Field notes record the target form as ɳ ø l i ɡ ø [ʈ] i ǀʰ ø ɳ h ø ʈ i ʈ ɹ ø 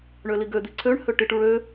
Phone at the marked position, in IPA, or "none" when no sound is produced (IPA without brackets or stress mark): d̪